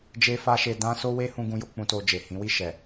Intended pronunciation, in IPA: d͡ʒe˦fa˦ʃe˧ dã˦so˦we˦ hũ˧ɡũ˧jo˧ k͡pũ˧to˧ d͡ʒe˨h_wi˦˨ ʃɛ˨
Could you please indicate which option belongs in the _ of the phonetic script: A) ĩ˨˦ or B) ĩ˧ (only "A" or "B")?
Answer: A